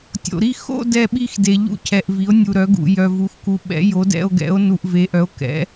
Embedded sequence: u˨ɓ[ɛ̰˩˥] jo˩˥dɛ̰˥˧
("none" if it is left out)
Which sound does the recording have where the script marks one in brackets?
ɛ̰˩˥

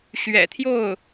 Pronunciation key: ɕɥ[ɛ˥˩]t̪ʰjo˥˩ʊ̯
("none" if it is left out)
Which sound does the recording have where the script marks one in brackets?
ɛ̰˨˩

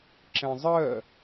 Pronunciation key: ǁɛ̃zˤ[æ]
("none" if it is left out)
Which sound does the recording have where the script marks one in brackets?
ɜ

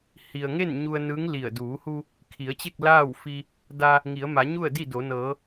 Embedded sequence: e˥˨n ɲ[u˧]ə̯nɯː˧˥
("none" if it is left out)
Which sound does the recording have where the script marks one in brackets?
u˧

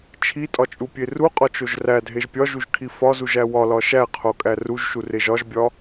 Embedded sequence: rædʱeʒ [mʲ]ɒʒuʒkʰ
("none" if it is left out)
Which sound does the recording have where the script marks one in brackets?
pʲ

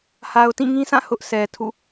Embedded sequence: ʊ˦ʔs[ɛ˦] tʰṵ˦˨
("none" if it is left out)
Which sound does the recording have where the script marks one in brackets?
ɛ˨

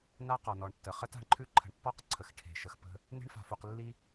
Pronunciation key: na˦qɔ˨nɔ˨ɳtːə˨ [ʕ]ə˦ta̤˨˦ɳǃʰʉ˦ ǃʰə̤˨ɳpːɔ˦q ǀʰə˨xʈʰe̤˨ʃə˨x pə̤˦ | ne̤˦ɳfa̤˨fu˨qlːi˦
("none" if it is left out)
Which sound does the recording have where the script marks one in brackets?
χ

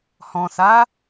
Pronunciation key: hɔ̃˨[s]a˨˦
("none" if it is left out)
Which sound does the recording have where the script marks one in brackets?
s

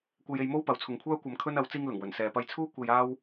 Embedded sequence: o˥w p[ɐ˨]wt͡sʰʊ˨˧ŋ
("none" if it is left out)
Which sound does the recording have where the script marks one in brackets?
ɐ˨˥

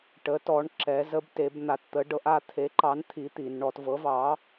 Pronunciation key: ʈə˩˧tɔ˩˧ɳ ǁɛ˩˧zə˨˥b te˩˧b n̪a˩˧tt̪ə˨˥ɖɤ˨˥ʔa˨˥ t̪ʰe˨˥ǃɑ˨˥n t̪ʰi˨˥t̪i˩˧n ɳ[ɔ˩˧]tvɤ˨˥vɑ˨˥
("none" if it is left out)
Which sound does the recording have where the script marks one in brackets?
ɔ˩˧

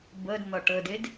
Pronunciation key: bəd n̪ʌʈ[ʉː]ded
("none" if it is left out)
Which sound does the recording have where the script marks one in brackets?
əː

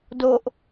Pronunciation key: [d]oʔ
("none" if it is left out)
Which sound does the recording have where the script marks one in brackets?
d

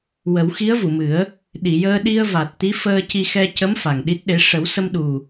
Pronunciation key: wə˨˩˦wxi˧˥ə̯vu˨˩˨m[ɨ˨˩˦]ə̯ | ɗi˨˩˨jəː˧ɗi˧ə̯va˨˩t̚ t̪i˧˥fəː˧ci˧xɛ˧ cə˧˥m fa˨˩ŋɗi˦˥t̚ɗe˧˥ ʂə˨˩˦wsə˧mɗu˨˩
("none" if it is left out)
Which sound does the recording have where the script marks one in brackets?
ɨ˨˩˦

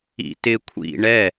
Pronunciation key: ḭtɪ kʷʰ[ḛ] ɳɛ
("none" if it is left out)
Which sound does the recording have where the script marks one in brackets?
ḭ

